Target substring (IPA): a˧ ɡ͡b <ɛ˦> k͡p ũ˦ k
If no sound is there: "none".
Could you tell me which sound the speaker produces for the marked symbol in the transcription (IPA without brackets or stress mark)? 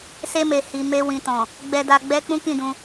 ɛ˦